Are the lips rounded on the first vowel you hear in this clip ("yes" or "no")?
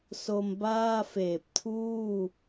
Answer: yes